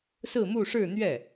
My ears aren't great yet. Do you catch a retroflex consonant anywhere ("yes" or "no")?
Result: yes